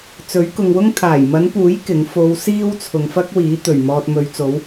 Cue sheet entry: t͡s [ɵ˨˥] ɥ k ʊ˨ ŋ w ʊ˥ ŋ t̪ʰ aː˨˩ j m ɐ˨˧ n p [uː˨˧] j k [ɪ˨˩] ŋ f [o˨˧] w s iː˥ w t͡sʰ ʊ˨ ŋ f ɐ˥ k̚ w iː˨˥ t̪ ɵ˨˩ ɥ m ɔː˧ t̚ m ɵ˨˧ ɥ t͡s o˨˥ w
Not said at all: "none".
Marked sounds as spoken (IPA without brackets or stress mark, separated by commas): ɵ˨˥, uː˨˥, ɪ˨˥, o˨˧